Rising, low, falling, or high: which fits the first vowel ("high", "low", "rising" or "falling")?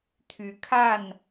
rising